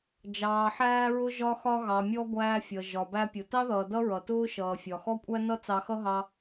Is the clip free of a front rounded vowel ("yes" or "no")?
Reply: yes